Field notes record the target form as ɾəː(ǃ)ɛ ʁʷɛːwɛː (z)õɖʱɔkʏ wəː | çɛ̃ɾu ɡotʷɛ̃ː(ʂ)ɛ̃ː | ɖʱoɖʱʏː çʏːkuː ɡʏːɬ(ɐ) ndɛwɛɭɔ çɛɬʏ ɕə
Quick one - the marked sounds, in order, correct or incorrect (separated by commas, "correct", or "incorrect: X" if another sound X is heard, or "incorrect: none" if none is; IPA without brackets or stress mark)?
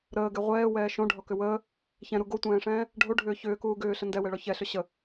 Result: incorrect: ɡ, incorrect: ʃ, correct, incorrect: ə